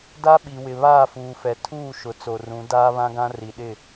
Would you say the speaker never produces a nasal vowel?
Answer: no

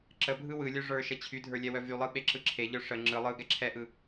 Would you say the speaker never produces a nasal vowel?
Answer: yes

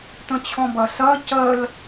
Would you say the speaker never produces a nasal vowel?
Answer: no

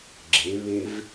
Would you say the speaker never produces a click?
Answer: no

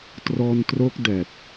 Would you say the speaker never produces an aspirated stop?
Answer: yes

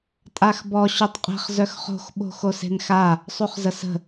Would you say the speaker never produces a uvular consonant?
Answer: no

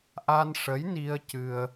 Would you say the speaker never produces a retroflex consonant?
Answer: no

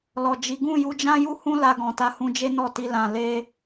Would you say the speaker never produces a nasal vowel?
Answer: no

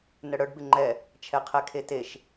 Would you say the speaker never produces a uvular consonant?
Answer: no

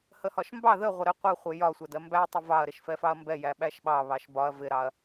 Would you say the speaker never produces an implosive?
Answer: no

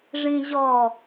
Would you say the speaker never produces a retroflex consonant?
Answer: no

